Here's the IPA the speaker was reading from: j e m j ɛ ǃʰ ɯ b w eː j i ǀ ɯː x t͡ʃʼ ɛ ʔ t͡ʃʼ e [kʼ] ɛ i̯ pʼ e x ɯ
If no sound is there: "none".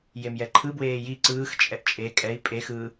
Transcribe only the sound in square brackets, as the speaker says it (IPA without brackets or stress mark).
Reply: kʼ